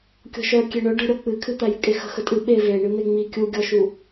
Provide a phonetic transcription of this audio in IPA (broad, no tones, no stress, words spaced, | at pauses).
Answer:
kʲɔ̤ʃœ kʲeɳœ ɖə̤ ɾʲɔk͡pɨkʰɨ t̪æjɨkʼexə̤ xətʼɨ ɓe ve ɳɨn̪eŋ͡mi kʲuɡʲɔʃu